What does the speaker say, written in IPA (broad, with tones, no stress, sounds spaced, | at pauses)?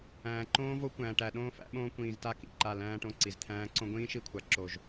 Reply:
æ̃ː˨ ǃ õː˦ v o˦ kʷ æ̃ː˨ ʈ æ˨ ɗ õː˦ f æ̰˦ ɓ õː˦ kʷ ĩː˨ z t a˦ k ḭ˨ ǃ a˦˨ l æ̃ː˦ ʈ õ˦ ǀ i˨ z t̪ʰ æ̃ː˦ ǀ õ˦ ɡʷ ĩː˦ ʃ i˦ kʷʰ a˨ ǁ o˨ ʒ